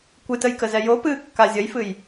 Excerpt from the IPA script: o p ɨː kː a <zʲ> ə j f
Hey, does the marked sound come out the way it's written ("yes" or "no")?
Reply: yes